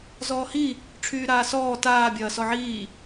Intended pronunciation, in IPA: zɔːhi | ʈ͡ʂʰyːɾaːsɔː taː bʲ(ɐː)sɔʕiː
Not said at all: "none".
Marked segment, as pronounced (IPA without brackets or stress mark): ɐː